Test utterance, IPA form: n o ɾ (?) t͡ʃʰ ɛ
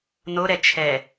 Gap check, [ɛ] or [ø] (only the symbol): ɛ